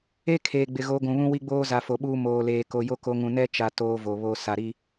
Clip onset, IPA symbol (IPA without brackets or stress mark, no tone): e